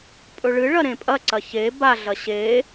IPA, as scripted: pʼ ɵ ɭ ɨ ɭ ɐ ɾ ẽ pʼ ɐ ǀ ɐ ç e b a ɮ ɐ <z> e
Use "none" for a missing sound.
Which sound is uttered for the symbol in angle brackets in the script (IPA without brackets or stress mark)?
ɕ